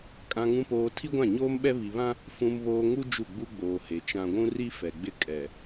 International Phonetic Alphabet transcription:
kʼ ã˨ ŋ ũ˨ p oː˨ tʰ i˦ ɡʷ ã˦˨ ɲ oː˦ m ɓ ɛ˦ β i˨ β ã˦ | f ũ˨ m β oː˨ ŋ u˦ d͡ʒ u˦˨ ɡ͡b u˦ ɡ͡b oː˨ h e˨ t͡ʃ ã˨ ɡʷ ũ˦ r i˦ f ɛ˨ ɡ͡b ɪ˦ kʼ ɛ˨

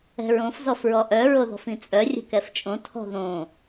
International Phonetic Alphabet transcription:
ɛ̤ ɹ õ f z ɔ f ɹ ɔ ʔ œ ɹ o ð ɔ̤ f ĩ t͡sʼ œ rʲ ə̤ k ɛ f t͡ʃʼ õ tʰ ɔ̤ ð õ

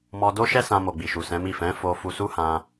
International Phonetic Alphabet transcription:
m ɔ˧ d o˦ ʃ ɛ˦ s ã˧ m o˨ ɡ͡b i˨ ʃ u˨ s ɛ̃˨˦ m i˦˨ f ɛ̃˨˦ f o˧ f u˧ s u˦ h ã˧

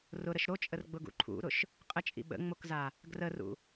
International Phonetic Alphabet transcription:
r ʊ ɾ ə ʃ ɾ o t͡ʃʼ ə r ɡ͡b ʊ ɡ ṵ ǃʰ ṵ ɾ ʊ ʃ | qʼ ə t͡ʃʼ ḭ ɓ ə̰ ŋ͡m o k z a | ɡ r ə r ṵ

